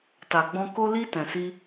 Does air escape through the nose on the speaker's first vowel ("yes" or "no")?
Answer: no